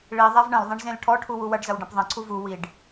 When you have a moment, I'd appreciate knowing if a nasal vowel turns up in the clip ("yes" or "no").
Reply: yes